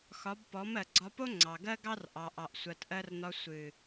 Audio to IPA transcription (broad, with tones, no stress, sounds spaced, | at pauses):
x ɒ˨˦ b p ɔ˨˦ m ɜ˨ ɡ͡ǀ ɒ˧ p o˦ ŋ͡ǀ ɑ˨ ɡ ɜ˦ ɡ ɑ˦ r ʔ ɑ˨ ʔ ɑ˨ ʔ sʷ ɜ˨ t ʔ ɜ˧ r n ɒ˧ sʷ ɨ˨